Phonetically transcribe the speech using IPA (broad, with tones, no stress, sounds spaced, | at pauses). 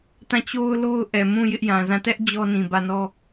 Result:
t ã˦˨ t͡ɕ o˦ ʊ̯ l o˦ ʊ̯ ʔ ɛ˨ m ũ˦˨ j ɪ˦ ʔ j ã˨ z ã˦˨ t ɛ˦ ʔ d͡ʑ ɔ˦ n ĩ˨ b ä˦˨ n ɔ˦